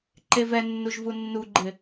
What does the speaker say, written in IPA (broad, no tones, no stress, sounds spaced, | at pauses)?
ǃ e v ɛ nː u ʒ v u nː u ɡ͡ǃ ɪ